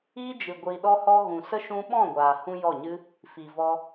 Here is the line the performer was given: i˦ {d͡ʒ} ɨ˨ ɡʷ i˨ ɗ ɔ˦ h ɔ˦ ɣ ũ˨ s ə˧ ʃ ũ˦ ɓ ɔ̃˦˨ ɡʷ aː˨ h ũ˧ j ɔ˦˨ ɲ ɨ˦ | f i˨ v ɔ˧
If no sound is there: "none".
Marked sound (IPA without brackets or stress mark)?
d͡ʒ